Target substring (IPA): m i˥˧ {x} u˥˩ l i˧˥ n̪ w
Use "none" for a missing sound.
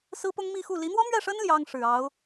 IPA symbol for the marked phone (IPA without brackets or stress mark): x